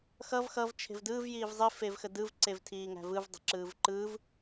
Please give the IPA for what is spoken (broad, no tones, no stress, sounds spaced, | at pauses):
x ʌ v x ʌ v t͡ʃʰ e̤ v d ɯː v j iː v zˤ i f e v x ə d ɯ v ǀ e v tʰ iː ŋ æ̤ v ɯ v dˤ ə̤ ǁ ɯː v ǃ ɯː v